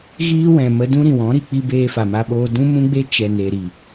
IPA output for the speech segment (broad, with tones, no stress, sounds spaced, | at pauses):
ɣ iː˦ w ɛ̃˨ m ə˧ d ũ˦ ɾ ĩ˨ w ɔ̃˨˦ ɾ i˨ k͡p i˦ b eː˧ f a˨ m a˧ ɓ oː˧ d ũ˦ m ũ˦ ɡ͡b e˦ t͡ʃ ɛ˨ n e˨ ɾ i˨